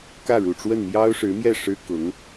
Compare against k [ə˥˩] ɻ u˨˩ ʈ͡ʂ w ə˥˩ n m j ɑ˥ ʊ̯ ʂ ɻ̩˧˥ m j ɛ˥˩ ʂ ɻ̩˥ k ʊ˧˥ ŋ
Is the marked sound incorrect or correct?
incorrect: ä˥˩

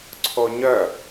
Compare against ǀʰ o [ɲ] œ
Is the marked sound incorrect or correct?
correct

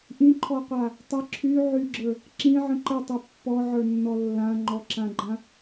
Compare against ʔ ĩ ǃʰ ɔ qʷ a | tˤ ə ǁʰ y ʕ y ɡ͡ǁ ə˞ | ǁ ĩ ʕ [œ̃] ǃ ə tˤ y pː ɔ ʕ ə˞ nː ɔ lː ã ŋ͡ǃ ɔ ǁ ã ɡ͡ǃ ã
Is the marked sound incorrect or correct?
incorrect: ə̃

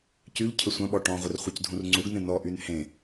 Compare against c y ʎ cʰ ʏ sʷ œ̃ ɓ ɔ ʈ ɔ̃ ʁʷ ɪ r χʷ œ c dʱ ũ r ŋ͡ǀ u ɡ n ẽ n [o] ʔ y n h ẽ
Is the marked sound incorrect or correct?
incorrect: ɔ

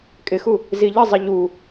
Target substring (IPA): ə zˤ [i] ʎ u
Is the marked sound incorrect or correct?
incorrect: ɪ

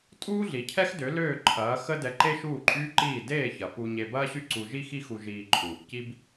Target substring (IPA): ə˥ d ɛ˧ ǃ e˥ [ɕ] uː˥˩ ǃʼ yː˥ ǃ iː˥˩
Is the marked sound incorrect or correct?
incorrect: ʃ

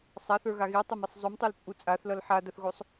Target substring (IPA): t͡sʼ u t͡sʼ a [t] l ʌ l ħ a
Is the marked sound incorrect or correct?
incorrect: θ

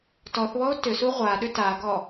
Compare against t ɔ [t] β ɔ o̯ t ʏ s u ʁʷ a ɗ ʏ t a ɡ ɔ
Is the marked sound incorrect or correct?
incorrect: θ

